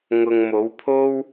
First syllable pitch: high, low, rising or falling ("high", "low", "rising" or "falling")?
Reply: low